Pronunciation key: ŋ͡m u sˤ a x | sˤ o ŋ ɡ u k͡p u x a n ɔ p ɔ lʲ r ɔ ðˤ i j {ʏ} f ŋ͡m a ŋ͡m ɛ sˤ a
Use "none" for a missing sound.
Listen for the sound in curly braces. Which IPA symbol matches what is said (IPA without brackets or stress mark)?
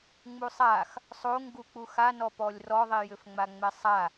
ʏ